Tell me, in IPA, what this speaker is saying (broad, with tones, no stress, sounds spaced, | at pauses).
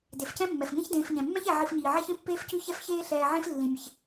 d e˩ f c ɛ̃˦ mː ɛ˩ f ŋ ẽ˦ ç d ẽː˨ f ɲ ɛ̃˩ mː ɛ̃˥ ç ɛ˨ ʕ i˨ f ɲ iː˩ ʕ ɛ˦ ç ẽ˥ pː eː˦ f c ʉ˦ ç ɛ˦ f ç eː˦ ɬ ɛː˨ ʕ ẽ˦ f lː ĩ˩ mʲ e˩ ç